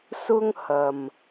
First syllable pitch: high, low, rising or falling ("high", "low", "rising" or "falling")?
high